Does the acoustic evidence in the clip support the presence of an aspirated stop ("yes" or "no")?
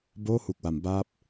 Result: no